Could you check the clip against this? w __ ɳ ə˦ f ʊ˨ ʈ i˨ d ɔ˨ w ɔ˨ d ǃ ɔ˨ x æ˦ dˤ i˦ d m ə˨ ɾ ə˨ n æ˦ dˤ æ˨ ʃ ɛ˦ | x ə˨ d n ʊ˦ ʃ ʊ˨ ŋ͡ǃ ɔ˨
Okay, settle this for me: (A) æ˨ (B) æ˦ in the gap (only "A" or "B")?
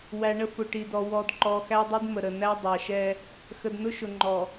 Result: A